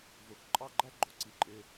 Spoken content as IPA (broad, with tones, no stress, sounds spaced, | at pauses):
v ʊ˧˩ x ǃʼ ɑ˥˧ ɡ͡ǃ æ˥ ɡ͡ǃ ʊ˩˧ ǀ i˧˩ ǃʼ ɪ˧